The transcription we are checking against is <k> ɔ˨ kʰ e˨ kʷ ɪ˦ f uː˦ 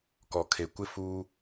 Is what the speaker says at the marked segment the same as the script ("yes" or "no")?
yes